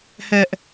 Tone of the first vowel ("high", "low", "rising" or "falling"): high